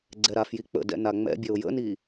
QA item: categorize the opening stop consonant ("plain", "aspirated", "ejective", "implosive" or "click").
click